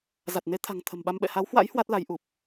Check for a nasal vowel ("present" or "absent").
absent